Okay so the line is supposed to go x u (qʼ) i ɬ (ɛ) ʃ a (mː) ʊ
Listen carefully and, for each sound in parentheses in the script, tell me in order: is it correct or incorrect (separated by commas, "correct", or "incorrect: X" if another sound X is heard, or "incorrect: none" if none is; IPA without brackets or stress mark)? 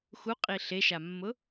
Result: correct, incorrect: e, correct